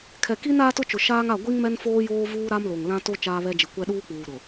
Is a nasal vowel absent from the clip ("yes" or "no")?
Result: no